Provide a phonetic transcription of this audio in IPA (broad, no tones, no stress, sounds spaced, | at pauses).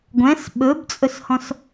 ɡʷ ɛ̃ s ɓ ɵ b t͡sʼ ɵ s h ɔ̃ s